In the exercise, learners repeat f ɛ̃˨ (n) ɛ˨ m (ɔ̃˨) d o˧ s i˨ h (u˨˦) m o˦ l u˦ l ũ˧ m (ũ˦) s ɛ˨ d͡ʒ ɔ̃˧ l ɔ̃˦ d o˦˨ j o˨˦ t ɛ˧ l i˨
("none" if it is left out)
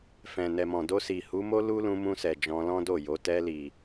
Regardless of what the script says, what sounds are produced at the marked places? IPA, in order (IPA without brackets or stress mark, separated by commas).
n, ɔ̃˨, u˨˦, ũ˧